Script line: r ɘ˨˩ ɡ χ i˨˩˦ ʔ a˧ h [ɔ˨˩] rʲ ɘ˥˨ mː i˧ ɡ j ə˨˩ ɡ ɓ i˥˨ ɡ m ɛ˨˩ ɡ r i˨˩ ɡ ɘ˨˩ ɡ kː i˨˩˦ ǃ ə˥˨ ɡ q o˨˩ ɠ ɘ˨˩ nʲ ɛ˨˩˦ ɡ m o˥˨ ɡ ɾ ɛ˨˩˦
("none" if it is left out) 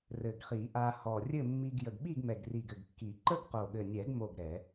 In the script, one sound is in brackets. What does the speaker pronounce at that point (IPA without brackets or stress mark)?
ɔ˨˩